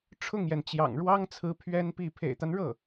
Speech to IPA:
ʈ͡ʂʰ ʊ˥˩ ŋ j ɛ˩ n t͡ɕ j ɑ̰˨˩ ŋ ɻ w ɑ˥ ŋ t͡sʰ ɹ̩˧˥ pʰ ɥ ɛ˥ n p i˥˩ pʰ ḛ˨˩ ɪ̯ t̪ a˦ n ɻ ɤ˥˩

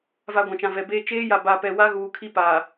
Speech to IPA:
v a˨ ɡʷ ã˨ t͡ʃ ã˨ v ɛ˨ b eː˦ t͡ʃ eː˦ j a˨ b a˨ p ɛ˨ w a˦ ɣ uː˨ kʰ i˦ p a˨

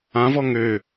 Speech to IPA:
ã v ɔ ŋ ø

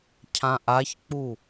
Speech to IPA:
cʰ ã ʔ a ç k͡p u

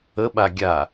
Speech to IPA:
ə ɓ a ɡʲ a

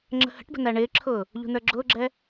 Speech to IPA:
ŋ͡ǁ ə̤ h ə̤ ʈ b ə̤ n æ ɳ ɪː ǁʰ ʊː | ʎ ṳ n ə˞ ɡ͡ǁ ʊː ɡ͡ǁ ɛ

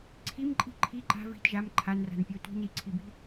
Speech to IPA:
ǀʰ i m ǃʼ i̤ ǃʰ i ǃ a̤ v i̤ t ʒ a m ǃʰ a n r a̤ n pʲ a tʷ i̤ n i ǀʰ i b i̤

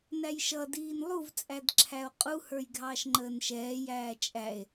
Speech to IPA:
n æ j ʃ ʌ d iː n lˠ u v t͡sʼ æ d ǁʰ æ o̯ qʼ u h ə˞ j ɡʱ ɑː ʃ ŋ͡ǃ əː n ʃ ɛː j æː t͡ʃʼ æ e̯

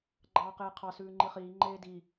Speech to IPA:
ɡ͡ǃ ɑː q eː qʰ ɑ s ʉː ŋ͡ǃ i χ iː ŋ͡ǃ eː d i

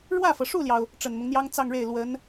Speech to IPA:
ɻ w ä˥˩ f ɤ˩ ʂ u˥˩ l j ɑ˩ ʊ̯ | ʈ͡ʂ ə˨˩ n m ʊ˦ ŋ n̪ j ɑ˥ ŋ t͡s ɑ˥˧ ŋ ɻ e˥˩ ɪ̯ l w ə˧˥ n

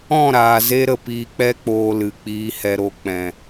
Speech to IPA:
ɔ̃˦˨ ɾ aː˨ z e˧ ɾ ə˨ p iː˨ k͡p ɛ˧ k͡p oː˨ l ɨ˨ k͡p iː˨ h ɛ˨ ɾ o˨ k͡p ɛ̃˨

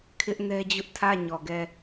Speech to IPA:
kʰ ɪ˦ ʔ n ɛ˦ d͡ʑ ʊ˦ ʔ tʰ ä˦˨ ɲ ɔ˨ ɡ ɛ˦˨

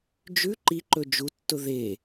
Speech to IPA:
d͡ʒ ʉ ǃ i ǃ ɵ d͡ʒ u tː ʊ ð e

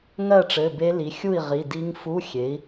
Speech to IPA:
ŋ ɜ˥˨ ʈ͡ʂ ɘ˩˧˩ b e˦˥ l i˩˥ xʲ u˥˨ i̯ ʁ i˩˧˩ d i˦˥ ŋ f u˧˥˧ xʲ e˩˥ i̯

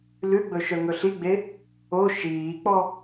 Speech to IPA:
l ʉ ɡ͡b ɵ ʃ œ ŋ ɵ ɬ i ɡ͡b e | o ʃ iː k͡p ɔ

